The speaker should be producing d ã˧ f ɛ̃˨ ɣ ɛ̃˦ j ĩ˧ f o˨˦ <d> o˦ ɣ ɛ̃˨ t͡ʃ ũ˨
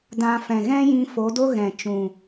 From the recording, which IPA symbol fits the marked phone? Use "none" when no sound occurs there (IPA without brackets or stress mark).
d